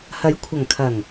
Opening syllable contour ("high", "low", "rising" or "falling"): rising